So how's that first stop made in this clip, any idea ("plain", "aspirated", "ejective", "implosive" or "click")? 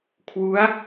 aspirated